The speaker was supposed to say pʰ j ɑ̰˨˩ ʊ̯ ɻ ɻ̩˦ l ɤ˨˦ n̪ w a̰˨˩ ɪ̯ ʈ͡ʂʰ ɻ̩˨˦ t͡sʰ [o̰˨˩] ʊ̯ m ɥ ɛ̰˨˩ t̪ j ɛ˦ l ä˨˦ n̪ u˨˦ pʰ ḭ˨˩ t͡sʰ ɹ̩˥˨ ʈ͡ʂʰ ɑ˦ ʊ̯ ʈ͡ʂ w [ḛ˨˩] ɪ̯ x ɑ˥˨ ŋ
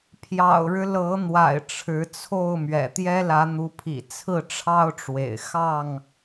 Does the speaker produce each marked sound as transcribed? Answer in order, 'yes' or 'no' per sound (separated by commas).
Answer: no, yes